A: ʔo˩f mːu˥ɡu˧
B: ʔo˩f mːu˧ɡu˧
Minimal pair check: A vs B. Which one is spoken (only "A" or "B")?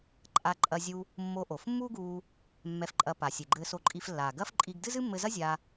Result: A